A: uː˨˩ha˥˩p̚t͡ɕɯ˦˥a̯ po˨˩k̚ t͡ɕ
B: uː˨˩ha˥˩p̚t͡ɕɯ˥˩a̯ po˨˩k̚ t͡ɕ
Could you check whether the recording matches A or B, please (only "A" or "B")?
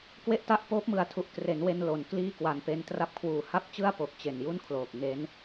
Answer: B